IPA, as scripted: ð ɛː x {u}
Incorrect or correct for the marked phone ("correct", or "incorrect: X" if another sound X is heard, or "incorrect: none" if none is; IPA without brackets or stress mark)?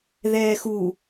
correct